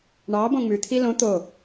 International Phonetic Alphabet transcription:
ɳ ɑ b õ ŋ͡m ʉ t̪ʰ i l õ t̪ o

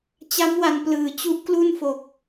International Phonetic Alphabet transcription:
t͡ɕ a˦˥ m w a˨˩ n p l ɯː˩˦ t͡ɕ u˦˥ ʔ k l u˥˩ n f o˨˩ k̚

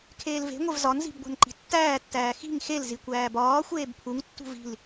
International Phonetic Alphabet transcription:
kʰ eː l v e̤ ŋʷ e v z ɒ n z i̤ b ɡʷ æ̤ n ǃ i̤ tː æː tː æː x i̤ ŋ x e l z i kʷ æː b ɒː xʷ eː b pʰ u ŋ tː ṳ v i̤ l

